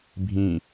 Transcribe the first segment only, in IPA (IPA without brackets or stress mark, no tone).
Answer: bʱ